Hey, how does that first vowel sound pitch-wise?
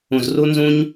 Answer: low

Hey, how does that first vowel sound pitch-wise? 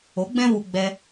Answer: rising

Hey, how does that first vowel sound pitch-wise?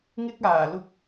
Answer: high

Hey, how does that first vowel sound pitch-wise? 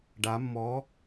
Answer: rising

